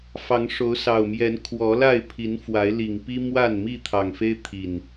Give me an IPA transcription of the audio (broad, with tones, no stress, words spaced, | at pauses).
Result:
fɑ˨˦ŋʂo˨˦ʊ̯sɑ˨˩ʊ̯mjɛ˨˦n kʰwɔ˨˦ la˥˨ɪ̯pʰi˨˦n fwa˨˦ɪ̯li˨˩ŋpi˦ mwa˥˨nmi˥˨ t̪ʰɑ˨˩ŋfe˦ɪ̯t̪ʰi˨˩n